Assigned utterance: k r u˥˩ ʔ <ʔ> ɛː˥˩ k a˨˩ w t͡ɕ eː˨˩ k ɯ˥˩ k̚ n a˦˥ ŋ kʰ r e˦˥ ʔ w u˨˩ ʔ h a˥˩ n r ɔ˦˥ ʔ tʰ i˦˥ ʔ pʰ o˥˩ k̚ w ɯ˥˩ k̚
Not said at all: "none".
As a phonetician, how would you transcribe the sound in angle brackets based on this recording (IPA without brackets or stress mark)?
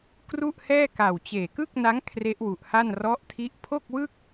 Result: h